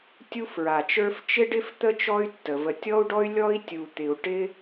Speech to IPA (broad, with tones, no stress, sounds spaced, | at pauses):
tʲ u˥ f ɹ a˩ t͡ʃ ə˞˥ f t͡ʃ ɪ˥ ɖ ɪ˥ f t̪ ə˥ t͡ʃ ɔ˥ y̯ tː ə˩ v ə˩ tʲ ɔ˥ u̯ ɖ ɔ˥ y̯ lʲ ɔ˥ i̯ tʲ u˩ t̪ ɪ˩ u̯ ʈ ɪ˥